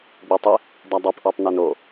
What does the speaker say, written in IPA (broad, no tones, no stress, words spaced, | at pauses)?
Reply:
ɡ͡betˤe | dadˤɛpʔɔtˤ nɛno